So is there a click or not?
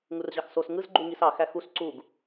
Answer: yes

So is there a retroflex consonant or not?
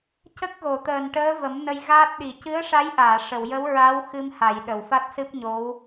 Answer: yes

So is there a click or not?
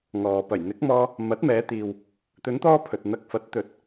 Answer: no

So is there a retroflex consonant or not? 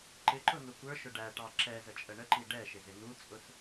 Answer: yes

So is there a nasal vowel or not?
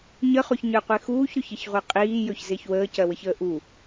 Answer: no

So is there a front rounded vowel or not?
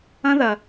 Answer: no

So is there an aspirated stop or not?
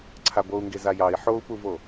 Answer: yes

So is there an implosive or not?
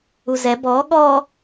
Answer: yes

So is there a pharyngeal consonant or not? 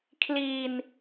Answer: no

